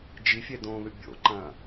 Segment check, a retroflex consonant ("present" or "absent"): absent